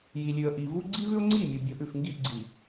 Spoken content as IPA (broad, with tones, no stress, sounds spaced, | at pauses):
j i˨ lʲ ʉ˨ ə̯ ʔ i˨ v u˦ ɡ͡ǀ i˦ v ʉ˦ ʊ̯ ŋ͡ǀ i˦˨ mʲ u˨ bʲ o˨˦ ʔ ʉ˨ f ŋ ɡ i˦˨ ʔ ɡ͡ǀ i˨